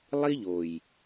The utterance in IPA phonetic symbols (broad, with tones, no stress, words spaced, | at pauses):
lˠi˦ʎo˨j